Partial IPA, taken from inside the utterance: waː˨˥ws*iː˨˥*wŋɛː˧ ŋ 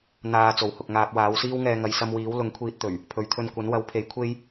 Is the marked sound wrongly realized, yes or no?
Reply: yes